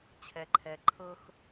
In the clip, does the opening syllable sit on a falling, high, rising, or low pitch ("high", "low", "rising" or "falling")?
low